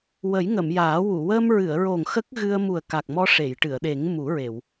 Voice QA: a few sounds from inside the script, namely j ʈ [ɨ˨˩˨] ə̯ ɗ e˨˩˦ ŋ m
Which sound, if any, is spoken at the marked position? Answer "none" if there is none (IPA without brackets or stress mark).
ɨ˨˩˨